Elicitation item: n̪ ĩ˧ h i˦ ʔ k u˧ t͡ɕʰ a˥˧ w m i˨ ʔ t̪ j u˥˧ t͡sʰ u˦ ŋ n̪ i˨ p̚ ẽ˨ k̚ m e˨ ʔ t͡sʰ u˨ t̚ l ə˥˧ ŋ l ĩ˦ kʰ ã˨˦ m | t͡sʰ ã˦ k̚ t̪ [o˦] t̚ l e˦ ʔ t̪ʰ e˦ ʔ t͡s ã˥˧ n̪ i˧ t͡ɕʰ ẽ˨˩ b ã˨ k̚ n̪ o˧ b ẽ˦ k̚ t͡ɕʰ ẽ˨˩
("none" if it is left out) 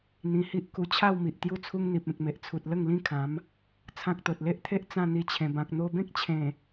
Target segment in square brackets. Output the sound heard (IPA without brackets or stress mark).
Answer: o˨